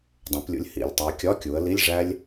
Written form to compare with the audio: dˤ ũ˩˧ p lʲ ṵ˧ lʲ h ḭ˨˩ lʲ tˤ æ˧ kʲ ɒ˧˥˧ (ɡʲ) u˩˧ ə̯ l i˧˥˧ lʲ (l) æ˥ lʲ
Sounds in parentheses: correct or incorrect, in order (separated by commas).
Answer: incorrect, incorrect